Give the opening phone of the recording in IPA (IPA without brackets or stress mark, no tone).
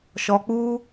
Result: ʃ